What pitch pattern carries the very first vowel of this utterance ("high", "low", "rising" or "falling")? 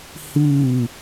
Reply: falling